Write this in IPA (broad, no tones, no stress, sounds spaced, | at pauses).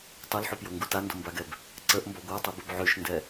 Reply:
tˤ u l ħ y p j o ŋ ɡ u t a n d o m b a ɡ ɛ b | ǀ ə ʔ m b ɔ ɡʷ a tˤ u b u b ʕ y ʃ n d ɛ